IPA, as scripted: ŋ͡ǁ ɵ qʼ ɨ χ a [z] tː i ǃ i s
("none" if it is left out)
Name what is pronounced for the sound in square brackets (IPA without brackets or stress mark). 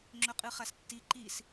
s